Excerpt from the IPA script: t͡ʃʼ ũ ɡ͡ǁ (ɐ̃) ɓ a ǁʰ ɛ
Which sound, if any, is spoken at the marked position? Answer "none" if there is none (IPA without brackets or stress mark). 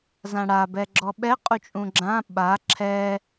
ã